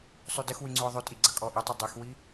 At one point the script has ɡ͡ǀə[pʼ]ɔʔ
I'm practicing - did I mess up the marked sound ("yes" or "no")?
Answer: yes